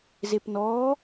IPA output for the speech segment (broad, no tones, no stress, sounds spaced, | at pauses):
z e p n ɔː